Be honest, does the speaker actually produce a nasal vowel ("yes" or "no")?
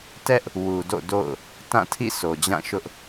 yes